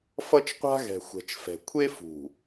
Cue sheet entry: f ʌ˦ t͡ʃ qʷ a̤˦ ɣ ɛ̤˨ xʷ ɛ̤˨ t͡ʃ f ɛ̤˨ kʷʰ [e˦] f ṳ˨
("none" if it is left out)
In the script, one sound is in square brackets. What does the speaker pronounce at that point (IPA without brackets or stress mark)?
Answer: e˦